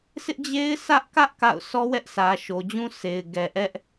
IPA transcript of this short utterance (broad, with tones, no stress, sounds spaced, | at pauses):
s ɪ˦ ʔ d͡ʑ e˦ ɪ̯ sʰ ä˦ ʔ k ä˦ ʔ k a̰˦˨ ʊ̯ sʰ ɔ˦ w ɛ˦ ʔ s ä˨ ʃ o˨ d͡ʑ ũ˦ sʰ e˨ ɪ̯ ɡ ɛ˨ ʔ ɛ˦ ʔ